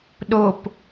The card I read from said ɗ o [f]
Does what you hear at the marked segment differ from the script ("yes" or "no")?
yes